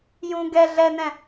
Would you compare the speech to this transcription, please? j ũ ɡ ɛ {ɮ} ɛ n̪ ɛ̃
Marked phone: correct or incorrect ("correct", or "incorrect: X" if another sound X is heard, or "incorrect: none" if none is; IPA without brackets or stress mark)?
correct